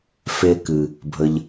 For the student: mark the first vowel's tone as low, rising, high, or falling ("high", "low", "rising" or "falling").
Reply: low